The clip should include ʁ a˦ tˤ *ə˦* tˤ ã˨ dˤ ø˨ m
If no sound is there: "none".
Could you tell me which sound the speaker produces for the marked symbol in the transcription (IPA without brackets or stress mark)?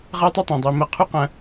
ə˦